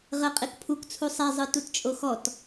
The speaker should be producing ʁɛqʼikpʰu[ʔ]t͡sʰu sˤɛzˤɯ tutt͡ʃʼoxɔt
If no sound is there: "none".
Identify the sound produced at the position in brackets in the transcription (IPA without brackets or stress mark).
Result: k